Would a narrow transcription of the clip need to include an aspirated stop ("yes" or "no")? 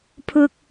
yes